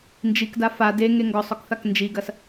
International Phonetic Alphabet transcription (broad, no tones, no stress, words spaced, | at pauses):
nd͡ʒikda fa deŋe ŋɡɔsˤɔkθak nd͡ʒiɡɐs